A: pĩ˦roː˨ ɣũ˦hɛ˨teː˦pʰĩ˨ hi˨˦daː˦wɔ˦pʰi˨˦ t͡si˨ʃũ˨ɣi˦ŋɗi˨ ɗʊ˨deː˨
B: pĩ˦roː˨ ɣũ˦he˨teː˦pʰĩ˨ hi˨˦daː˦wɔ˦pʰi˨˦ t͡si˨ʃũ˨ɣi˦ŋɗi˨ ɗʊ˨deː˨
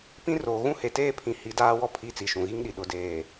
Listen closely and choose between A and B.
B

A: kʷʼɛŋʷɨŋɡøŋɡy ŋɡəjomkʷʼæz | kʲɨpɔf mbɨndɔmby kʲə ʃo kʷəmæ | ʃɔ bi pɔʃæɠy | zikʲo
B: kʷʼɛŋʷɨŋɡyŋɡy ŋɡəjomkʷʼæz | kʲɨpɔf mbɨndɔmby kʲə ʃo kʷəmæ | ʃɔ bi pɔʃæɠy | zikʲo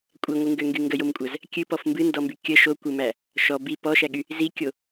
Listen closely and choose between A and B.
A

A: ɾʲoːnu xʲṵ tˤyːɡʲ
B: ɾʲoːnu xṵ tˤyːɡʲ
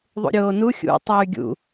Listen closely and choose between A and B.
A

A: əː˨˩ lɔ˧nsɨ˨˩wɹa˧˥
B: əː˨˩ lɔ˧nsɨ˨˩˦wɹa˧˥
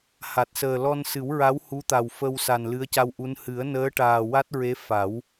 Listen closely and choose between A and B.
B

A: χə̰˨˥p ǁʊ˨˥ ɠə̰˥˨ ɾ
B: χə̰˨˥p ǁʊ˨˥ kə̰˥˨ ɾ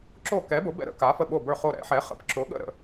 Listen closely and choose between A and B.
A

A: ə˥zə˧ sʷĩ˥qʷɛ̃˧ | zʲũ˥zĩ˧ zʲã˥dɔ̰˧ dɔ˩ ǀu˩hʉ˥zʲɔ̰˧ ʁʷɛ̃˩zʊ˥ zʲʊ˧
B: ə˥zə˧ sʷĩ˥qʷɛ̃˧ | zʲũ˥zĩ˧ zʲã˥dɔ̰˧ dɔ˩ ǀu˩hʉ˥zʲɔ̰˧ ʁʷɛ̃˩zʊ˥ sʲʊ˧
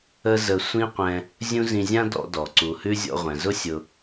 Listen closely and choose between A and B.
B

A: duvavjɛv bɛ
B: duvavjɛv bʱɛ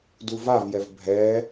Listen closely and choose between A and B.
B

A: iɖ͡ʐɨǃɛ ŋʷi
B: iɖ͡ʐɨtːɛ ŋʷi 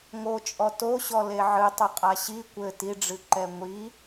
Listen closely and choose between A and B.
A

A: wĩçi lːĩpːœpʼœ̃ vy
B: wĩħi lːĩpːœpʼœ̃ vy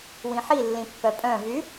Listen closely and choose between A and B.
B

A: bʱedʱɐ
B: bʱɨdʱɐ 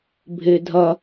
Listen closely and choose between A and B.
A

